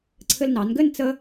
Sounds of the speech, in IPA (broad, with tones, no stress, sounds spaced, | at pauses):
ǀʰ ɘ˧ l n ɑ˩˧ n ɡ ɘ˥˧ n t͡s ə˧